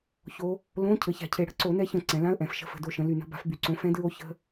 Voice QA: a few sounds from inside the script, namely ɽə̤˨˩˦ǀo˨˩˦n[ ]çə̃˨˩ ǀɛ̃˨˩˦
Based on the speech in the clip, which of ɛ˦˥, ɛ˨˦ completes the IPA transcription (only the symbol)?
ɛ˨˦